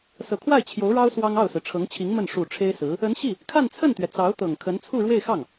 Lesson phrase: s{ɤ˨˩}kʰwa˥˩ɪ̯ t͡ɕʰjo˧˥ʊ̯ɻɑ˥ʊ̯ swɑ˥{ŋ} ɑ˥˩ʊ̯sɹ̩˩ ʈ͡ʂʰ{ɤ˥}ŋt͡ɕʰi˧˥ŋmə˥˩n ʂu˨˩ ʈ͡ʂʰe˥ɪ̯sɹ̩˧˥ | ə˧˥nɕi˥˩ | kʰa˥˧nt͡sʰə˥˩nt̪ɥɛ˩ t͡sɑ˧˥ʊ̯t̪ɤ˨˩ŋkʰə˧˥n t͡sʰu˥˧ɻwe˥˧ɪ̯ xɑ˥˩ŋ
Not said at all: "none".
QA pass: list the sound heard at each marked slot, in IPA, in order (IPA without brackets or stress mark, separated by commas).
ɤ˨˩, ŋ, ɤ˧˥